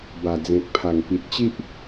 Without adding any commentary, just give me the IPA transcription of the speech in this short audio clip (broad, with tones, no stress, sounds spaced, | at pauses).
b a˨˩ d͡z ẽ˨ k̚ pʰ a˨˩ ŋ p i˨ t̚ t͡ɕ i˦ ʔ